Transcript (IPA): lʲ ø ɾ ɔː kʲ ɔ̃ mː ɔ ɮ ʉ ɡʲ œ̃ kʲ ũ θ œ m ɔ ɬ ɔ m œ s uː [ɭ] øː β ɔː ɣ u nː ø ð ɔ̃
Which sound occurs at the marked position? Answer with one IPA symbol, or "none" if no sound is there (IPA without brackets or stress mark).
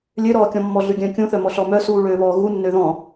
ɭ